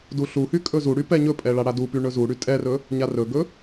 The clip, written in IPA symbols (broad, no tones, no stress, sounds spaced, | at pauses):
d u ɬ u h y kʼ ɵ z u ɽ y p ɛ ɲ ɵ pʼ ɛ ɭ a ɽ a d u p y ɳ ɵ z u ɽ y tʼ ɛ r ɵ | ɲ a r ɵ ɡ ɵ